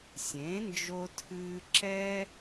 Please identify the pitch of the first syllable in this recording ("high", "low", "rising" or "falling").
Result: rising